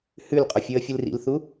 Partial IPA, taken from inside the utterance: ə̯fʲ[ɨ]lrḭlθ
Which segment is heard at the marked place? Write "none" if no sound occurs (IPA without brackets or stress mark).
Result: ɨ